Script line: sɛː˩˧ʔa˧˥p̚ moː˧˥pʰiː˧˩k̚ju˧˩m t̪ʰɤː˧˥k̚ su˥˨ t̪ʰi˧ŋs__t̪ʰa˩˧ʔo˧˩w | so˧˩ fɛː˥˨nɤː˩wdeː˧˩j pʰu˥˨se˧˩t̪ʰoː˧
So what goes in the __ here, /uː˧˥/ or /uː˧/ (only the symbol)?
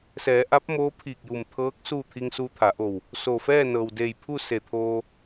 uː˧